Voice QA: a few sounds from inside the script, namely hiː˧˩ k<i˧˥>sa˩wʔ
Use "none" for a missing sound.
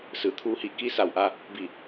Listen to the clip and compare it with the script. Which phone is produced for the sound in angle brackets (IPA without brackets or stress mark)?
i˧˥